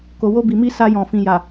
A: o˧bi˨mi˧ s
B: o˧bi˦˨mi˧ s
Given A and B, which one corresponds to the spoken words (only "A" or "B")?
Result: A